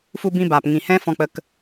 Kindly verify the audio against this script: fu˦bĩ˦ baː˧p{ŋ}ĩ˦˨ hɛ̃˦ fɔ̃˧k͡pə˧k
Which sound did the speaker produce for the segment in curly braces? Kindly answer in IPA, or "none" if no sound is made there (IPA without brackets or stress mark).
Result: ŋ